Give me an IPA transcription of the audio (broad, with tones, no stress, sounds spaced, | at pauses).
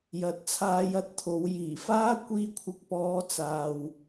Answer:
j ɐ˨˥ t̚ t͡sʰ aː˧ j ɐ˥ t̚ t̪ʰ o˨˧ w j iː˨˩ f aː˥ kʷ iː˧ kʷʰ ɪ˨ k̚ p ɔː˨˧ t͡s aː˨ w